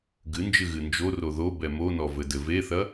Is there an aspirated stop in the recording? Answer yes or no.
no